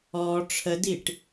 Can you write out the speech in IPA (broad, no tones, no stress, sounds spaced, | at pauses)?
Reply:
ɔ ʈ͡ʂʰ ə d i ʈ